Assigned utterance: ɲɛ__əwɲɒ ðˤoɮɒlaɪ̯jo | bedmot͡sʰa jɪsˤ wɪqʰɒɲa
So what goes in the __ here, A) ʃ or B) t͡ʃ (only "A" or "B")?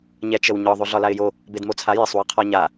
B